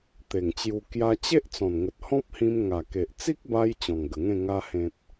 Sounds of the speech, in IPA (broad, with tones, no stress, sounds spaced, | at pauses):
t̪ e˨˩ ŋ t͡ɕ j u˧ k j a˧ t͡ɕ e˦ ʔ t͡s ɔ̃˨˩ n ŋ ə˨ t̚ h ɔ̃˦ p̚ h ĩ˧ m ŋ a˨˩ k e˨ ʔ t͡s i˦ k̚ b a˧ j t͡ɕ ɔ̃˨˩ ŋ ɡ ə˨˩ ŋ ẽ˥˧ ŋ a˧ h ẽ˨ t̚